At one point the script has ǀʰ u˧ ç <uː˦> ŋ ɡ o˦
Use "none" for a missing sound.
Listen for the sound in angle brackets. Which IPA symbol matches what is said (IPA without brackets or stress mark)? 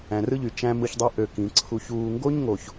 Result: uː˧